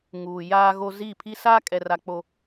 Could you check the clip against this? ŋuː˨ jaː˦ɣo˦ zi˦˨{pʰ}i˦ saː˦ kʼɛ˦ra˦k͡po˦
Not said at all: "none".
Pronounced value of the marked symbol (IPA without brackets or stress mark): pʰ